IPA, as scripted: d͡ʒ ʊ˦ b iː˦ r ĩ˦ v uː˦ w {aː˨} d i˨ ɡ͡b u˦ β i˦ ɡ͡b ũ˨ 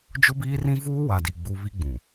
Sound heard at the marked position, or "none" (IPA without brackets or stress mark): a˨